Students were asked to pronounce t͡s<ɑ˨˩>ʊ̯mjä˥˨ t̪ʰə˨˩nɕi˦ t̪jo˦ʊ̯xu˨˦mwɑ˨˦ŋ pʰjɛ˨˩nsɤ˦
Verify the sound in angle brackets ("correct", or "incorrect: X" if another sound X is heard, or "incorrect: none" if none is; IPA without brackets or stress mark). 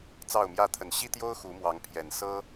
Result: incorrect: ɑ˥˨